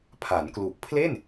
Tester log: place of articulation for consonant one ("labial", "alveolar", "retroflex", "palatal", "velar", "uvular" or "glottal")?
labial